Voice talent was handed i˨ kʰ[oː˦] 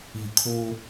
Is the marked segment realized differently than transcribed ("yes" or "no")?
no